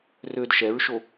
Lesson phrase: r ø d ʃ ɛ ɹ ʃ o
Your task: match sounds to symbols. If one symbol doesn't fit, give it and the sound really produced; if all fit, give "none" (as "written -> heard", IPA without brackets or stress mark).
none